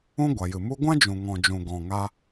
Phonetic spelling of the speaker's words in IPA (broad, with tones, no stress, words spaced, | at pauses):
ũ˦ɡʷa˨jɨ˨ mu˧ɡʷã˦ d͡ʒũ˨ŋɔ̃˨d͡ʒũ˨ ɡɔ̃˨ ŋa˧